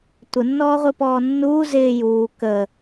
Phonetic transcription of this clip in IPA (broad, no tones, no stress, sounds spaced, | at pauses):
tʷ ə nː ɔː ʁʷ i p ɔː nː uː z ɪː j uː k ə